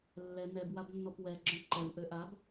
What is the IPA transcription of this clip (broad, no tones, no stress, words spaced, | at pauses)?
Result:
lːɛ nɛbwabnːɔp wɛ ɡ͡ǁœ̃ǃɛw ʔøʔab